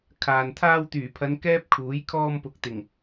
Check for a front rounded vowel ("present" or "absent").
present